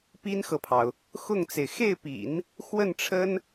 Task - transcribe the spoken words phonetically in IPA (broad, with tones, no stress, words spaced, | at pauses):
pi˥nxɤ˨pʰɑ˩ʊ̯ | xʊ˥˩ŋt͡se˩ɪ̯ xe˥˩ɪ̯pḭ˨˩˦n | xwə˥˩nʈ͡ʂʰə˥n